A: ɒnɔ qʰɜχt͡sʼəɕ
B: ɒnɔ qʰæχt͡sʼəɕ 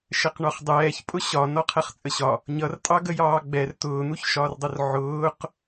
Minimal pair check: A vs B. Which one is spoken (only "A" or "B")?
B